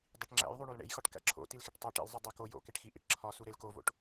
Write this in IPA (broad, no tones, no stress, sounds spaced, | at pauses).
dˤ i ʈ ŋ͡ǁ æ̰ j ðˤ u ɳ o l ɳ ḛ j x ɒ ʈ k æ̰ ǁʰ o̰ t i l x e ʈ tˤ o ʈ ḛ l zˤ u dˤ æ k o j o̰ k e ʈ x i ʔ ḭ ʈ ǁʰ ɒ s u ɾ e l k o v o̰ ʈ